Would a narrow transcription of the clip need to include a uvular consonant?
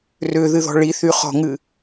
yes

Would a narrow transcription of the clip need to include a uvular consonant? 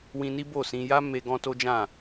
no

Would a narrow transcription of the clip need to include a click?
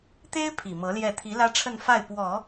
no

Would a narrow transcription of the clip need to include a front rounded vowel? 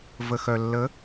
yes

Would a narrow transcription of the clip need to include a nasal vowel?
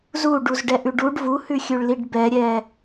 no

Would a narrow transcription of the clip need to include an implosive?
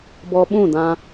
yes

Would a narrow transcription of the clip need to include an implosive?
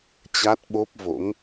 yes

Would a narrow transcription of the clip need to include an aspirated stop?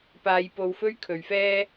yes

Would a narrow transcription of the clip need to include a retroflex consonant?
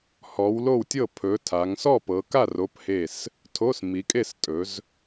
no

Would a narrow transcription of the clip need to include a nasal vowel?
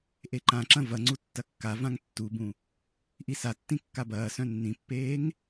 yes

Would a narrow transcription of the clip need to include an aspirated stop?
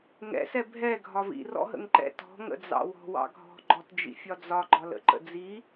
no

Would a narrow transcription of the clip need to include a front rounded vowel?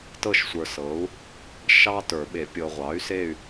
yes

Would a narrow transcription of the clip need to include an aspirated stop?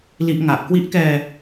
no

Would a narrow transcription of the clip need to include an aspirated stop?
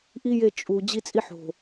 no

